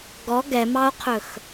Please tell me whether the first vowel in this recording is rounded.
yes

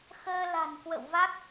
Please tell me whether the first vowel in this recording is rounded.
no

